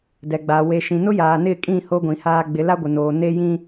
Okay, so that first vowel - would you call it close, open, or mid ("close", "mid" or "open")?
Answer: mid